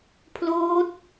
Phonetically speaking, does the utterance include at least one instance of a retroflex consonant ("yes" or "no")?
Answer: no